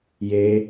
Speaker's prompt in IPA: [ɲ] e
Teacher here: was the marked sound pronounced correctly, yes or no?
no